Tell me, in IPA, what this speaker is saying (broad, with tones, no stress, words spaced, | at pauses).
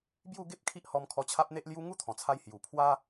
bju˥˧ɡe˦p̚kʰi˦ʔhɔ˧m kʰɔ˧t͡ɕʰa˦p̚n̪e˦ʔlju˦ ŋu˦t̪ʰɔ̃˨˩t͡sʰa˧jhju˨˩ pʰwa˦